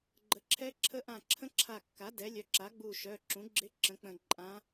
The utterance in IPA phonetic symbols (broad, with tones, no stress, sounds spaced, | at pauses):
ɡ͡ǃ ə˩˥ ǁʰ ɛ˧˥ ǁʰ ə˧˥ ʔ ã˧˩ ǁʰ ə̃˧˥ ǁʰ a˧˩ kː a˩˥ d ɛ˩˥ lʲ œ˩˧˩ ǁ a˩˥ ɡ͡b u˧˩ ʃ œ˩˧˩ ǁ ũ˩˥ ɡ͡ǁ ɪ˧˥ ǁ ə̃˩˥ k͡p ə̃˧˩ ǃʼ ã˧˥